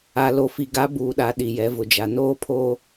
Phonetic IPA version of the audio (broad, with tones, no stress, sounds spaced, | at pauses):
a˨ l o˨ f i˨ ɡ a˨˦ b uː˨ ɗ a˨ ɗ i˨ j ɛ˨˦ v ʊ˨ d͡ʒ a˨ n oː˦ pʰ oː˦